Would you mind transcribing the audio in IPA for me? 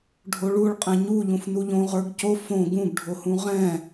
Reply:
ɖʱ o ɭ u ɭ qʼ ɛ̃ ɲ u ʎ ũ f n u ʎ õ ʁ ə˞ ɡ c o f õ ɡ ũ ɡ ɖʱ o h ũ ʁ ɛ̃

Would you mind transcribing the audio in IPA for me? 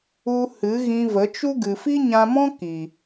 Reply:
u˧ h ɨ˨˦ ɣ ĩ˧ v ə˨˦ t͡ʃ u˦ ɡ ɨ˨ f i˦ ɲ ã˧ m ɔ̃˦ k i˨

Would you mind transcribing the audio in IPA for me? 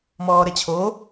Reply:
m ɔː ɾ ɛ t͡ɕʰ o

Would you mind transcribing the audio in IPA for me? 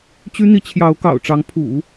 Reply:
t͡ɕ y˥ n̪ i˧˥ t͡ɕʰ j ɑ˧˥ ʊ̯ k ɑ̰˨˩ ʊ̯ ʈ͡ʂ ɑ˧˥ ŋ pʰ ṵ˨˩˦

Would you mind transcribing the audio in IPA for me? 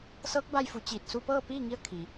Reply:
s ɤː˧˥ k̚ b a˧ j f u˩˧ t͡ɕ iː˧˩ t̚ s u˧ p ɤː˥˨ p iː˥˨ ŋ i˧˥ ə̯ kʰ i˩

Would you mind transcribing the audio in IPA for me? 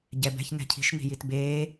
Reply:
ɟ ɛ b ɛ̤ ç n ɛ̤ cʰ i̤ ʃ n i̤ j i t b eː

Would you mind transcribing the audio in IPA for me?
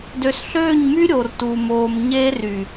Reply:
d ø˨ s ɬ øː˦˨ ɲ m y˦ ɾʲ o˨ r t u˨ m oː˨ m ɲ eː˦ r y˨

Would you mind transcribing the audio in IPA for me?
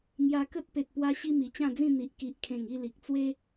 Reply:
ŋ j a˧ k ə˦ t̚ p e˨ t̚ p w a˧ ɕ i˧ m i˨˩ t͡ɕ ã˥˧ d͡z ĩ˥˧ n̪ i˨ ʔ k i˨ ʔ kʰ ẽ˨˩ ŋ i˥˧ l i˨ k̚ t͡s w e˦

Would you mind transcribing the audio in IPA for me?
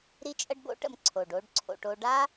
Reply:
ɾ i˦ t͡ʃʼ ə˦ ɖ b o̰˦ ʈ ə̰˧ m ǀʰ o˨ ɖ o˦ ɖ ǀʰ o̰˧ ʈ o˧ ɖ a˦

